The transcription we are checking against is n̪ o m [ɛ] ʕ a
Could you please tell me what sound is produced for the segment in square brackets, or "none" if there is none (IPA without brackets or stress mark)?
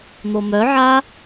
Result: œ